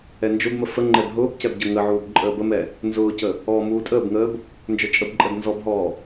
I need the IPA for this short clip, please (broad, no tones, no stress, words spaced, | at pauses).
ɛnd͡ʒʊbmə fəŋ͡ǃɛb ɦʊːb cɛbɟəŋəʕuːb ǃʼəːbəmɛ | nzʊːcə | ɔːmuːtʼəːbŋəːb | nd͡ʒə˞t͡ʃʼəbǃʼɛb nzɔbɦɔː